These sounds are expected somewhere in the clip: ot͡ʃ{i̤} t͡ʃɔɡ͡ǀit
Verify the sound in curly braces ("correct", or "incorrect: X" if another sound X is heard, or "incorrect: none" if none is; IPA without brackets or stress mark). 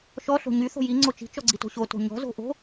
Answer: correct